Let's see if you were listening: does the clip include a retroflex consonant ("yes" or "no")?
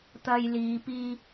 no